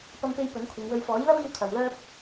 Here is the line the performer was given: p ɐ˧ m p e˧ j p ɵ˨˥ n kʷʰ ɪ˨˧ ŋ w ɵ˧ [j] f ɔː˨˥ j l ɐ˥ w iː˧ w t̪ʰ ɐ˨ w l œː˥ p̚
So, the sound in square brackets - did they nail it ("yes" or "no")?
no